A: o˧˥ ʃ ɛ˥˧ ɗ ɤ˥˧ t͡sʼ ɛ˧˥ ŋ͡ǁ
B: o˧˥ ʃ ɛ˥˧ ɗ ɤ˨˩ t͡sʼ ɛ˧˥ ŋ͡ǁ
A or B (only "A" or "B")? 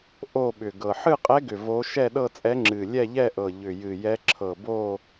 A